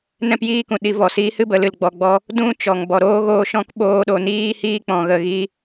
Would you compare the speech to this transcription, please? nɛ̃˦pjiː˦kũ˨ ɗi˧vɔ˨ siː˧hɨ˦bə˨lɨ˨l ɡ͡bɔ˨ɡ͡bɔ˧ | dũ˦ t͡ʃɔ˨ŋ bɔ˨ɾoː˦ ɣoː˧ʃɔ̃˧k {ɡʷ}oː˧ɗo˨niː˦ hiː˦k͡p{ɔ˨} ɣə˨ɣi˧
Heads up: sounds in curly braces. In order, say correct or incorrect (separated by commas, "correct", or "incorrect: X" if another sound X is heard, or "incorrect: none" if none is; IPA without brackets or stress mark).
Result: incorrect: ɓ, incorrect: ɔ̃˨